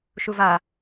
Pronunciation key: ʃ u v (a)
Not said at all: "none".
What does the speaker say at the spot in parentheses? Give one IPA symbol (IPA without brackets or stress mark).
a